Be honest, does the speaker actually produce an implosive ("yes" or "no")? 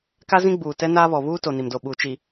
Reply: yes